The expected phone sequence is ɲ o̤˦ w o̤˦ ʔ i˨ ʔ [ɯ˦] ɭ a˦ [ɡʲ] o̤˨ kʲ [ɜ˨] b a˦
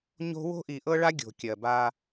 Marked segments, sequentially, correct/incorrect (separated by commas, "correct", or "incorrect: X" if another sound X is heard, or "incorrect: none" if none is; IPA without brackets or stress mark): incorrect: ɤ˦, correct, correct